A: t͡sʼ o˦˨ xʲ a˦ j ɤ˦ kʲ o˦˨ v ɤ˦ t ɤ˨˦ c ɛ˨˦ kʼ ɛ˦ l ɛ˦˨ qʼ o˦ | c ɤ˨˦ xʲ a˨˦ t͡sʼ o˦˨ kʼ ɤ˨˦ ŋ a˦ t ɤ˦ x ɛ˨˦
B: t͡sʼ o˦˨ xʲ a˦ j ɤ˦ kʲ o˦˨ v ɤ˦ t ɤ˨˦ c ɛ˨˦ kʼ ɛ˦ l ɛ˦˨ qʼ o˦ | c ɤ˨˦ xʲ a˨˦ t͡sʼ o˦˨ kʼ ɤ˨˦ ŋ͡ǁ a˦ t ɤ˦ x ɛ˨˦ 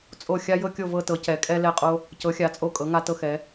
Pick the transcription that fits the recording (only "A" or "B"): A